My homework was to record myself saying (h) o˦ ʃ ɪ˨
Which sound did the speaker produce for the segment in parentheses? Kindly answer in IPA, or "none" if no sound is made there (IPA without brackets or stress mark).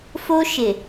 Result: f